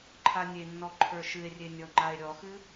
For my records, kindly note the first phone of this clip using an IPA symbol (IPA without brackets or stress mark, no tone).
ǃʰ